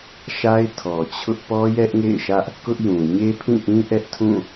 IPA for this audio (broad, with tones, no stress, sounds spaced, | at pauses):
ʃ a˦ ɪ̯ tʰ ɔ˨ t͡ɕʰ ʊ˦ ʔ p ɔ˦ j ɛ˦ ʔ ŋ ḛ˦˨ ɪ̯ ʃ ä˦ ʔ | k ʊ˦ ʔ j ũ˨ ɲ e˦ pʰ ĩ˦˨ ʔ ĩ˦ ʔ ɛ˦ ʔ tʰ ũ˦˨